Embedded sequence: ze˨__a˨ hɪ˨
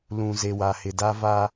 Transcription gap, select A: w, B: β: A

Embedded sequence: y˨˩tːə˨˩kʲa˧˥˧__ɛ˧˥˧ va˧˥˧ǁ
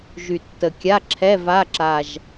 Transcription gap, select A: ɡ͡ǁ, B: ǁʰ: B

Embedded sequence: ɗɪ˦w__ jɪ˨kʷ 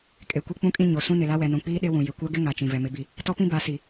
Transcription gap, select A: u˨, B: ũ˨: B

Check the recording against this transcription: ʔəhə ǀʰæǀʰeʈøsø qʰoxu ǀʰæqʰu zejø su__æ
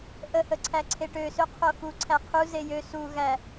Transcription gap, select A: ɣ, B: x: A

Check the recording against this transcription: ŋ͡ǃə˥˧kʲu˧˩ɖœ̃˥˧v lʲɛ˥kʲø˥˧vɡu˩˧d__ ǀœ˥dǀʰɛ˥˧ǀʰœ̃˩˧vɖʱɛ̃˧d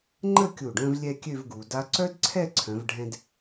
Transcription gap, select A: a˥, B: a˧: A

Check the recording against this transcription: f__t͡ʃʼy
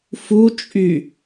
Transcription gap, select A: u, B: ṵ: A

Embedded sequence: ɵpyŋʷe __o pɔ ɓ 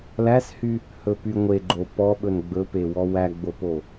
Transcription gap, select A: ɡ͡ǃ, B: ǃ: A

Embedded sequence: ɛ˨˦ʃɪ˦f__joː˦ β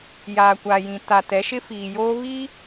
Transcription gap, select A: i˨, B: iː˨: B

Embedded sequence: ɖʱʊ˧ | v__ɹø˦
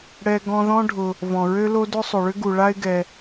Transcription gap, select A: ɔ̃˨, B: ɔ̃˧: A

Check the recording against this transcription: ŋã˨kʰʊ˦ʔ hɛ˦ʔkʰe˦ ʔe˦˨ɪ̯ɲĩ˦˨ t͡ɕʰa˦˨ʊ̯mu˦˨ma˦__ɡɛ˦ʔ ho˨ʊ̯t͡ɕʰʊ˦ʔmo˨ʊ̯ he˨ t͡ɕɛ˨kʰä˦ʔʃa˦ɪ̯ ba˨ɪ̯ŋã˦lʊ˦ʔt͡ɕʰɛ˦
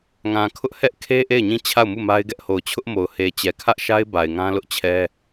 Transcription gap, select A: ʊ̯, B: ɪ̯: B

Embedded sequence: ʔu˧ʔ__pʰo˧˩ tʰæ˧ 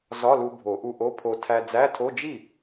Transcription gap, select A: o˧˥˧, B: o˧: A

